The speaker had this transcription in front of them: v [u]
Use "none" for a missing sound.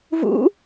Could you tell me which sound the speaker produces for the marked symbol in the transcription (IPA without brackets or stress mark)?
ṵ